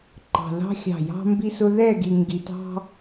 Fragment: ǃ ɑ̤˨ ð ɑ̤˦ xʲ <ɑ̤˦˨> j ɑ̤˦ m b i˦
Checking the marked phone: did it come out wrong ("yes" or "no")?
no